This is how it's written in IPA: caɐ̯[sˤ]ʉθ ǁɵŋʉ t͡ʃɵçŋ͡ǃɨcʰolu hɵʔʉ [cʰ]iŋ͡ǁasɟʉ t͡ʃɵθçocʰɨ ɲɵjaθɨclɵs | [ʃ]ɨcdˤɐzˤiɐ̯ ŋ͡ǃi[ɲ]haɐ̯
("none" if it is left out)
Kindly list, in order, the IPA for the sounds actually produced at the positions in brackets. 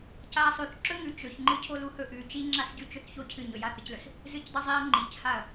sˤ, t͡ʃ, z, c

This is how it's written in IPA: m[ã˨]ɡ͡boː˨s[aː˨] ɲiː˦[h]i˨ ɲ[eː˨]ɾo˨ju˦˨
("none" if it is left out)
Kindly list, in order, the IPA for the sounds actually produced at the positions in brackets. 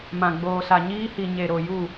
ã˨, a˨, h, e˨

